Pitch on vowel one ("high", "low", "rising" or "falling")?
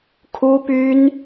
high